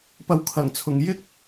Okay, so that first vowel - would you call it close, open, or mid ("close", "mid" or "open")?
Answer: open